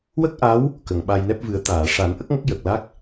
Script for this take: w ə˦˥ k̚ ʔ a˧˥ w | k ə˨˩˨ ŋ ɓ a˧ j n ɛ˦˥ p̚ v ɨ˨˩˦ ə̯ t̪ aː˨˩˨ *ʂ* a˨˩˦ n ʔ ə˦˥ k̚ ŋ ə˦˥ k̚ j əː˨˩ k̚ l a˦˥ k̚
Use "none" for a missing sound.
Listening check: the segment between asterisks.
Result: ʂ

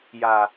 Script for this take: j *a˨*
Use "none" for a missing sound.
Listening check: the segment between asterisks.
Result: a˨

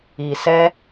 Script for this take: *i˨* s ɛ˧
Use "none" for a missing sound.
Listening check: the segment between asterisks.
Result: i˨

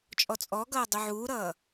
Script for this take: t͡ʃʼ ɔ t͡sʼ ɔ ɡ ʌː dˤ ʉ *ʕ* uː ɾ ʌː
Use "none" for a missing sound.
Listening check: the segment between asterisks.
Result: ʕ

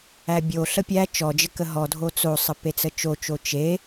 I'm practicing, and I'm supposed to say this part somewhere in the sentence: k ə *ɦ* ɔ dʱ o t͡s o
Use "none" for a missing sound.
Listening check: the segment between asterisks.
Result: ɦ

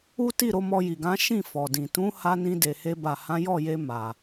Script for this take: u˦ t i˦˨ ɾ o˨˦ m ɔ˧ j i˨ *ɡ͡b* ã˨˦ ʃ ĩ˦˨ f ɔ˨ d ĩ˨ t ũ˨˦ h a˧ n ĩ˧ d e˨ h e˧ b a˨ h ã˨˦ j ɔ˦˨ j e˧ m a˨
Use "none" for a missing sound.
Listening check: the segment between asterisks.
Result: ɡ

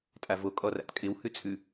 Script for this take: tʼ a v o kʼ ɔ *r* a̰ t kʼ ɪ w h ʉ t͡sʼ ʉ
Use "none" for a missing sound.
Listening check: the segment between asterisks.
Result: r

